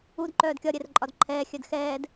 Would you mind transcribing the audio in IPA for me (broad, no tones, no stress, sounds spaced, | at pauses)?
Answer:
u d ǃ œː d kʲ ɒ ɾʲ ɛ r ǃʼ ɒ d ǃʰ ɛː xʲ œ d x ɛː d